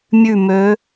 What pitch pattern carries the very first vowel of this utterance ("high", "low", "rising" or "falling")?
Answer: falling